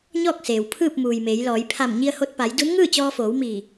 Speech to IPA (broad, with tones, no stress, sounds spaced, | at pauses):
ɲ ɔː˥˨ k̚ s eː˩ w pʰ ɯː˥˨ p̚ m uː˩ j m eː˩˧ j l ɔː˩˧ j pʰ a˧˩ m ɲ i˧ ə̯ h o˧ t̚ p a˩˧ j d u˧˥ n ŋ ɯː˥˨ t͡ɕ ɔː˧ f oː˩˧ w m iː˧˩